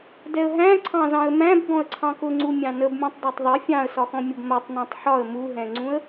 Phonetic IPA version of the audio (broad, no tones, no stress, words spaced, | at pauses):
dɛə̯ɦæ̃ ǀʰɑ̃zɑ̃ə̯mæ̃b ɡɔ̃ə̯ǀʰɑ̃kʊŋ͡ǀu mʲɑ̃nəbmʲũtˤ dˤætˤðˤɪ fʲɑ̃ə̯sɒxɔ̃ mʲʌbmɜtˤnæ̃tˤ ħɒə̯ muɦɛ̃ŋ͡ǀũə̯